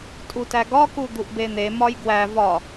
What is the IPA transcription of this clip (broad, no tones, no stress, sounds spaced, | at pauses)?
tʼ u t æ ɡ ɒ k u d̪ u ʔ b e n̪ e m ɒ j ɡ w æ v ɒ